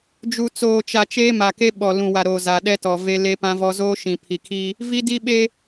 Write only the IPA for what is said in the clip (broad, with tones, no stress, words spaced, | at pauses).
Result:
d͡ʒu˨t͡soː˨t͡ʃa˨ t͡ʃeː˦ma˨ke˦ ɓɔ˨lũ˨wa˨ ɾo˨za˨ɗɛ˦tɔ˨ ve˦le˦ pã˦vɔ˦ zoː˦ʃĩ˨pʰi˨kʰiː˦ | vi˦di˦ ɓe˦